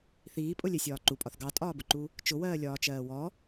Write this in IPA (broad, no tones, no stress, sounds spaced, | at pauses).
θ iː pʼ ʊ lʲ ɛ sʲ ɒː ǃ u pʼ ɒ θ ɡ ɑ tʼ ɒː b ʊ ǃ u | t͡ʃ ʊ w ɜː lʲ ɒː t͡ʃ ɜː w ɔ